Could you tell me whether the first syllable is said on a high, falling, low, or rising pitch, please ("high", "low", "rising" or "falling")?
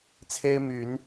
high